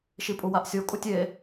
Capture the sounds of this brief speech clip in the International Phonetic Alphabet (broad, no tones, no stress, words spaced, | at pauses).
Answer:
ʃipʼuwaʔsʲo kʼutʲe